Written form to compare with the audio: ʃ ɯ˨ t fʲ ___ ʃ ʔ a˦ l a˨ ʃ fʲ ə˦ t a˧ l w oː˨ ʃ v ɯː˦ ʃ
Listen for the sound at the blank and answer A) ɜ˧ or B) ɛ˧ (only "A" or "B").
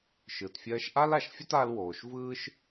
A